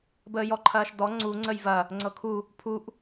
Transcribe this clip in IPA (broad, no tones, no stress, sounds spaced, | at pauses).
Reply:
b əː j ɔ ǃʰ ɐː ʃ d ɔ ŋ͡ǀ u ŋ͡ǀ ə j v ɐ | ŋ͡ǀ ɤ kʰ u | pʰ u ʔ